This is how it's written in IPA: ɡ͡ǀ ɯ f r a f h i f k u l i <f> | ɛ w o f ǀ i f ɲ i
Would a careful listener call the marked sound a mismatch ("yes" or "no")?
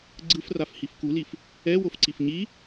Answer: no